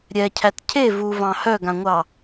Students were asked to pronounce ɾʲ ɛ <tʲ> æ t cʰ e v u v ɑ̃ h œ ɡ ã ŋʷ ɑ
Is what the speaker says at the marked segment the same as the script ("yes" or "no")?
no